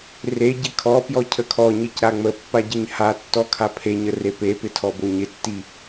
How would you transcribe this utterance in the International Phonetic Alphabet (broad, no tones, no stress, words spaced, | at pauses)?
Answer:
re ɟɪkʰɔpjɔ cʰəkʰɔɲic ɾaŋ͡məpːa ɟɪɲhatːɔ kʰapʰeɲə repepɪ tʰɔboɲɪtːi